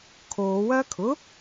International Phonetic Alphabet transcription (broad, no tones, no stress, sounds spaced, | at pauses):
kʰ oː w ɐː kʰ ʊ